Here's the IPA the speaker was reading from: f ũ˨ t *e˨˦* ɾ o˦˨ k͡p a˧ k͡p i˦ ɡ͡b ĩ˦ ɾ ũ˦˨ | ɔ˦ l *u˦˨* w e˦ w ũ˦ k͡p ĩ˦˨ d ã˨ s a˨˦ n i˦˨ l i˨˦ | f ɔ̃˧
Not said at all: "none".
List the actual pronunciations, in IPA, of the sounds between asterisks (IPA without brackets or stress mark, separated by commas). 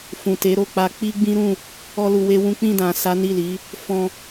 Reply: e˨˦, u˧